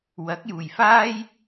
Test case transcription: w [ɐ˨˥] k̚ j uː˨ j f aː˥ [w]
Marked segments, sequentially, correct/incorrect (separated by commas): correct, incorrect